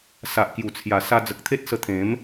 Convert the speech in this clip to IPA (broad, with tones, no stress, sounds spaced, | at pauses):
s a˨ ʔ k j u˨˩ t͡sʰ j a˨˩ s a˧ d͡z ə˨ k̚ t̪ʰ e˦ t̚ s ə˧ t̪ʰ ẽ˨˦ m